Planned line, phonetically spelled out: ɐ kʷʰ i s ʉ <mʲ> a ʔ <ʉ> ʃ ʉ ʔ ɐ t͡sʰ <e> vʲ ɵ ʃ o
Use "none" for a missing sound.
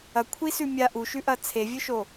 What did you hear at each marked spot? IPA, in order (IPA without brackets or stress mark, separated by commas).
mʲ, u, e